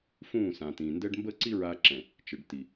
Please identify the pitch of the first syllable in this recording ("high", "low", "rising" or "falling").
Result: falling